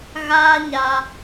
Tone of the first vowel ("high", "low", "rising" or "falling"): high